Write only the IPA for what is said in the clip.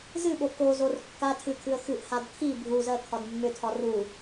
zɨɓo kozor kːa tʰɨkʰɨə̯ xɨʔhad kʰi bʱuzɜ kʰɒdmːʏtʰɒ ru

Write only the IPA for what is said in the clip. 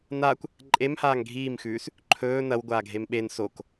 naːkʷ | ǃʼem haːŋɡʱiːmxʉːs | ǃʰɵː nɐwɡʷaːɡʱem ɓen sok

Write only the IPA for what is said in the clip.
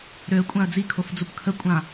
ɾøə̯kʷʼãə̯ d͡zikʰofd͡zup kʰəkʷʼã

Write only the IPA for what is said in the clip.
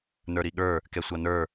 nə˞ɾiɠə˞ | kɛsʷʌnə˞

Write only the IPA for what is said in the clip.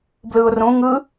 blɯʊ̯rũ ŋɯ

